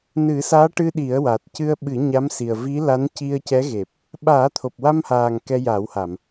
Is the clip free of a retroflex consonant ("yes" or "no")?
no